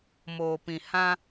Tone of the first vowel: low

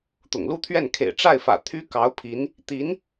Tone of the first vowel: low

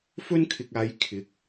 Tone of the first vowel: high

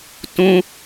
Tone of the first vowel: high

